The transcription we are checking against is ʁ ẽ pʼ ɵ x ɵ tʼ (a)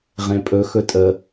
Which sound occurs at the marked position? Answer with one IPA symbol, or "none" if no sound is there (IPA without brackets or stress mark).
ə